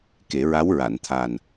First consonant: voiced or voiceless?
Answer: voiceless